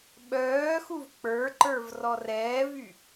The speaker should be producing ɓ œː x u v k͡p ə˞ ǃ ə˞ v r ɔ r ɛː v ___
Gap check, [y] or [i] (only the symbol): y